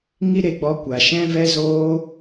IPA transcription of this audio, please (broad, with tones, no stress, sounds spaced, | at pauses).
ŋ i˦ ɾ e˧ ɡ͡b ɔ˧ kʷ a˨ ʃ ɛ̃˧ v ɛ˧ z oː˧